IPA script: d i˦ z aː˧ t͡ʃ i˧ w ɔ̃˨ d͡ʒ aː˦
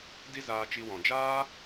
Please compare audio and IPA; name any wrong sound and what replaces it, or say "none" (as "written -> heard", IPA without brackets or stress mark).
none